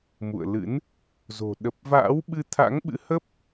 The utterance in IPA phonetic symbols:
m ṵ˧˨ ə̯ l ɨ̰˧˥ n | z o̤˨˩ ɗ ə˨˩ p̚ v a̰ː˧˥ w ɓ ɨ˧ t̪ʰ a̰˧˥ ŋ ɓ ɨ̰˧˥ h ə˦˥ p̚

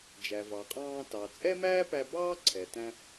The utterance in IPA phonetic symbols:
d͡ʒ æ˩ v ɑ˩ qʼ ɑ̃ː˧ t ɑ˩ t͡sʼ ɛ˥ m æː˥ p æ˧ b ɑː˥ ǀʰ ɛ˩ t æ̃˧

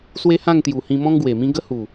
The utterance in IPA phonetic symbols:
s w e˦ h ã˥˧ ŋ t̪ j u˨˩ h ĩ˧ m ɔ̃˦ ŋ ɡ w e˨˩ m ĩ˦ ɡ ə˦ h u˨˩

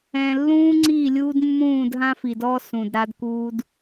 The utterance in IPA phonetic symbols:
ɛ̃˨ lː ũː˦ ŋ͡ǀ iː˦˨ lʲ uː˦ d mː ũː˦˨ d ɦ ã˦ f i˨ d ɔː˦ s ũ˨ d ɾ a˦ d k uː˦ d

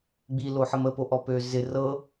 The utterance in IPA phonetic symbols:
ɡ͡b i l o ħ ə m ə p o ʔ ɔ p ø z ɪ r ɤ

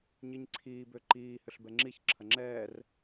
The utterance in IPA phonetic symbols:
ɲ i ɲ ǀʰ iː b ø ǃ iː h ʏ ɬ b ɛ ŋ͡ǁ i ç ǁʰ ɐ ŋ͡ǁ ɛː r

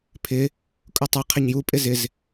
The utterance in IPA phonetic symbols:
pʰ ɪ | kʼ u tˤ ʉ qʰ ɛ ɲ j u pʼ ɪ z ɪ z

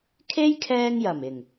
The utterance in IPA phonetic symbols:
kʰ e˥ j kʰ ɛː˧ ŋ j ɐ˨˩ m ɪ˨˩ ŋ

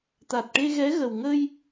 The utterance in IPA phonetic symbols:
t̪ a˨˩ t̚ ʈ e˧ ɣ ɛ˧˥ ɣ ə˨˩ w ŋ ə˧ j

